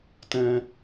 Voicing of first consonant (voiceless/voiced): voiceless